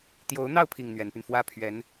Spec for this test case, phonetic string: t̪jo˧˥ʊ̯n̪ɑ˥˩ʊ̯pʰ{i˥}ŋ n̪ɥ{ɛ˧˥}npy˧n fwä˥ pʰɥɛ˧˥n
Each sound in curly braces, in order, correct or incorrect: incorrect, correct

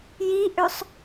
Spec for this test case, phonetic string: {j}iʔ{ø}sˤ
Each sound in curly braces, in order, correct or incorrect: correct, correct

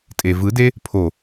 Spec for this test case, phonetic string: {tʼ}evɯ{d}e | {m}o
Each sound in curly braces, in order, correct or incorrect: correct, correct, incorrect

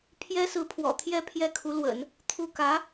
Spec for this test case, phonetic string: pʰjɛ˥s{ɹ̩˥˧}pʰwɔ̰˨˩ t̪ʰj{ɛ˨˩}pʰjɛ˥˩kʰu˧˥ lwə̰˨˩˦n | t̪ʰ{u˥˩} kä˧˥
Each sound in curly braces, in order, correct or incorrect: incorrect, incorrect, correct

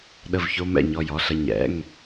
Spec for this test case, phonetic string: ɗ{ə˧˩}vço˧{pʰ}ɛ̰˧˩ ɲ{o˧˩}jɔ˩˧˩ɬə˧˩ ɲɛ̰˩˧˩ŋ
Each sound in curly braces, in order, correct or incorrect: correct, incorrect, incorrect

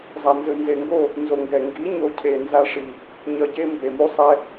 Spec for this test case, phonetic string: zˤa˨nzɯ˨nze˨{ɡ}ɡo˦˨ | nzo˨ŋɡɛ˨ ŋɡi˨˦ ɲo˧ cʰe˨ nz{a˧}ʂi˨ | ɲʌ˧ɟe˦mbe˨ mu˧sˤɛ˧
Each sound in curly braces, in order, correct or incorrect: incorrect, correct

